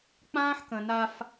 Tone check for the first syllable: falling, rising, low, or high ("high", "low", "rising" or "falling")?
high